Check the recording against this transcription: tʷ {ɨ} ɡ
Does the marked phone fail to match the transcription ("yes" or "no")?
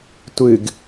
no